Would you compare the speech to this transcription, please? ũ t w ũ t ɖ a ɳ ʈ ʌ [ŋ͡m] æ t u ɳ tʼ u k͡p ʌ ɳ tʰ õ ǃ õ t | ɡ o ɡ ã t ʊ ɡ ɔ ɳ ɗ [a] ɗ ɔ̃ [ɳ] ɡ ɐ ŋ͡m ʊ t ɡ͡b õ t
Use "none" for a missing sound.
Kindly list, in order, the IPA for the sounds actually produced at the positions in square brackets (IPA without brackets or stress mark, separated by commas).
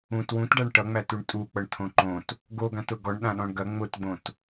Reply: ŋ͡m, ã, ɳ